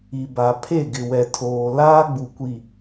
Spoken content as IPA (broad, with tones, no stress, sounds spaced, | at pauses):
i˨ b a˨ pʰ e˦˨ ɡ ɪ˨ w ɛ˨ tʰ oː˨ l aː˦ ɡ͡b u˨ kʷ i˨